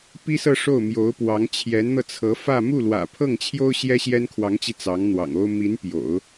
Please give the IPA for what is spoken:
p i˥ s ɤ˥˧ ʂ o˥˩ ʊ̯ m j o˧˥ ʊ̯ p w ɑ˧˥ ŋ t͡ɕʰ j ɛ˧˥ n n̪ ɤ˧ t͡sʰ ɤ˧˥ f ä˥˧ m u˥˩ l w ä̰˨˩ pʰ ɤ˥˩ ŋ t͡ɕʰ j o˥ ʊ̯ ɕ j ɛ˥ ɕ j ɛ˥ n kʰ w ɑ˧˥ ŋ t͡ɕ i˧ t͡s ɑ˧˥ ŋ n̪ w ɑ̰˨˩ ŋ o˥ ʊ̯ m i˧˥ n p j o̰˨˩˦ ʊ̯

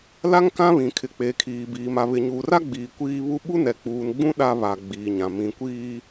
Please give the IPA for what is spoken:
l a˦ ŋ k ã˦ β ĩ˨ kʰ ɪ˨ k͡p eː˨ kʰ iː˨ b iː˨ m a˨ β ɪ˨ ɲ uː˨ r a˦ ɡ͡b iː˨ kʷ iː˦ β u˦ ɓ u˦ n ɛ˨ k͡p uː˨ n ɡ͡b ũ˦ ɗ a˦ β a˨ ɡ͡b iː˨ ɲ ã˨ m ĩ˨˦ kʷ iː˦

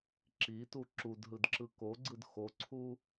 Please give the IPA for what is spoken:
ǁ i t u ǁ u d ɦ ɯ d ǁ ɯ k o ɡ͡ǀ ɯ d x o ǀʰ u

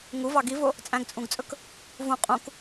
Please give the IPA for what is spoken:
ŋ u v ɑ ɡ i v o | t͡sʼ æ̃ ɡ t͡sʼ ũ ɡ t͡sʼ ɵ k | v ũ qʼ ũ k

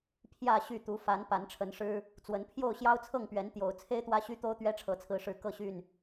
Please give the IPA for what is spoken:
pʰ j ä˥˨ ɕ y˥˨ t̪ u˨˦ f a˨˦ n p a˨˦ n ʈ͡ʂʰ ə˨˦ n ʂ ɻ̩˦ | t͡s w ə˨˦ n pʰ j o˥˨ ʊ̯ ɕ j ɑ˦ ʊ̯ t͡sʰ ɤ˥˨ ŋ p ɥ ɛ˨˦ n t̪ j o˨˩ ʊ̯ t͡sʰ e˦ ɪ̯ t̪ w ä˦ ɕ y˦ t̪ o˦ ʊ̯ t̪ ɥ ɛ˦ ʈ͡ʂʰ ɤ˨˦ t͡sʰ ɹ̩˨˦ ʂ ɻ̩˨˦ k ɤ˥˨ ɕ y˥˨ n

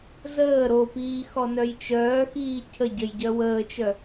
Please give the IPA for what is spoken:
z əː ɾ o p iː x ɔ n œ j t͡ʃ œː x iː cʰ ə ɟ ə j ɟ œ w əː t͡ʃ œ

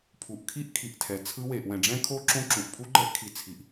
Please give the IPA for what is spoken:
pʰ u˨ ʔ kʰ i˦˥ ʔ kʰ i˨ ʔ tʰ ɛ˨ t͡sʰ ɯ˦˥ w e˨ ʔ w ɛ̃˨ ɖ͡ʐ ɛ̃˦˥ kʰ o˦˥ ǁ õ˦˥ ǁ ũ˨ ʔ pʰ u˦˥ ɡ͡ǃ ɛ˦˥ ʔ kʰ i˨ t͡sʰ i˨ ʔ

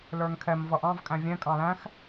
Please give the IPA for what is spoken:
l ə˞ ŋ kʰ ɛ m v ʌ ʔ ɑ̃ v kʼ æ̃ vʲ ɛ̃ kʼ ɑ̃ l æ̃ x

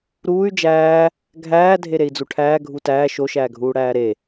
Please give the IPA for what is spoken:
ɾ uː y̯ d͡ʒ æː | ɡʱ æː dʱ e ɾ e i̯ d͡z u ʈʰ æː ɡʱ u t æː ʃ o ʃ æː ɡʱ uː ɽ æː ɾ e

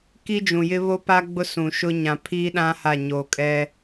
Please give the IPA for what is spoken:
k i˦ d͡ʒ ũ˨ j ɪ˦ β o˦ p a˦ ɡ͡b ʊ˦ s ũ˨ ʃ ʊ˦ ɲ ã˨ pʰ iː˦ ɗ ã˦ h a˦˨ ɲ oː˨ kʼ ɛ˦

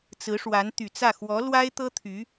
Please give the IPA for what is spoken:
t͡s ɹ̩˧˥ ʂ w a˧˥ n t̪ y˨˩ t͡s ä˥˩ x w ɔ˧˥ l w a˥ ɪ̯ t̪ ɤ˥ t̪ʰ y˧˥

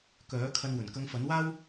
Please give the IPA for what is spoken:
k œː˨˥ kʰ ɐ˧ n w ɵ˨˩ n k ɐ˧ ŋ f ɐ˨˥ n w aː˥ w

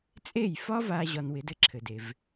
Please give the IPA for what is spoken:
t͡sʼ e˥˩ j f ɒ˥ v a˧ ʑ ɒ˧ n w ɪ˩˥ d ɘ˧ ǁʰ ɘ˩ d e˩ v

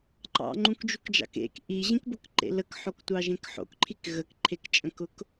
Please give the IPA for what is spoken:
ǃ ɑ̰ ŋ͡ǃ ũ k d͡ʒ u k d͡ʒ ɑ̰ k ḛ k ʔ i ʑ ĩ k b ʊ k ǃ ḛ l ə k ħ o k tʷ ɑ ʒ ẽ k ħ o̰ k ǃʰ i k ɣ ə k ǃʰ e k t͡ʃʼ ə̃ k ʊ k

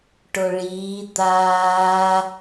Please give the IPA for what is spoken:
ʈ o ɭ iː d̪ aː

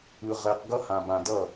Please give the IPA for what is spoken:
ɯ˨ ʁ ɛ˨ q ɡ ʌ˦ h ã˨ b ã˨ d ʌ˦˨

